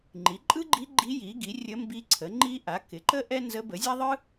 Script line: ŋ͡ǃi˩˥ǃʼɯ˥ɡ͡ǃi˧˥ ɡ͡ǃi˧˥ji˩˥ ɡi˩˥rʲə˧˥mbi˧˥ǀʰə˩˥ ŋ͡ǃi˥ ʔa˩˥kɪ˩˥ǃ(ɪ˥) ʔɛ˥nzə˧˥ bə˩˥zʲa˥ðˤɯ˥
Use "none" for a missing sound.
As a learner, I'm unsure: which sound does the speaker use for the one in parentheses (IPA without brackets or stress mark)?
ə˥